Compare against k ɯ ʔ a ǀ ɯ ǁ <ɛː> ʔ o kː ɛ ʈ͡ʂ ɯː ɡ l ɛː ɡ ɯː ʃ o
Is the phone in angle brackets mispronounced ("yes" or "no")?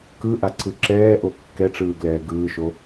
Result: no